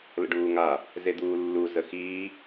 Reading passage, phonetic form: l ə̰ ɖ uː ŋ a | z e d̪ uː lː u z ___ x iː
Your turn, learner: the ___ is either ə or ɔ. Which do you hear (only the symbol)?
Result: ə